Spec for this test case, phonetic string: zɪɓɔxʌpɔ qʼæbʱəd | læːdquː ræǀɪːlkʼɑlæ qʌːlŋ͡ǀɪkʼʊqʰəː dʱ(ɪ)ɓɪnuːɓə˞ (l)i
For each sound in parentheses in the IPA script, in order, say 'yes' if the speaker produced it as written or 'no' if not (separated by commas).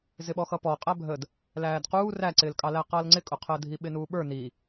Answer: no, no